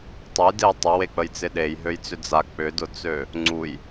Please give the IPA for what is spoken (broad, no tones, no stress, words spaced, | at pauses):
tˤəj deə̯tˤə wek͡pəjt͡sɪɗej ɦøjt͡sʏd͡za k͡pʏdʊt͡sø | ŋ͡ǀuj